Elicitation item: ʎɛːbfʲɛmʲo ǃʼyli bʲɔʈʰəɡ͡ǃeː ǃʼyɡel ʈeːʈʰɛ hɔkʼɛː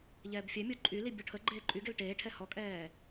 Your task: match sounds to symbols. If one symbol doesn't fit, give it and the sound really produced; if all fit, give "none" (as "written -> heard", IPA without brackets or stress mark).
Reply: none